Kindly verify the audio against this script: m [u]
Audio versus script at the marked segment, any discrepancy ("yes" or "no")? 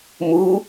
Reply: no